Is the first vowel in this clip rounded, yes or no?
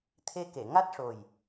no